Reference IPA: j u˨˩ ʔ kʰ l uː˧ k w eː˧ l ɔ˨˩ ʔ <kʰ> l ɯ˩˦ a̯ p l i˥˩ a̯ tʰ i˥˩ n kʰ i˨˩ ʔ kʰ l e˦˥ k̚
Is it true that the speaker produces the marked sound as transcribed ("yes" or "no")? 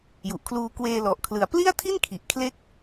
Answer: yes